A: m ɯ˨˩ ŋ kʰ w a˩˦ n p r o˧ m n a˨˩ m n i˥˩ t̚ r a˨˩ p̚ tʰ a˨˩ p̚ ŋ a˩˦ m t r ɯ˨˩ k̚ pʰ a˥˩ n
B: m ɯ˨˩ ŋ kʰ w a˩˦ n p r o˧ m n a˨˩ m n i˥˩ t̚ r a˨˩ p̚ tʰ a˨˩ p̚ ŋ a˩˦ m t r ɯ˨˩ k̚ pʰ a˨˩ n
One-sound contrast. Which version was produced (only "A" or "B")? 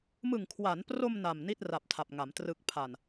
B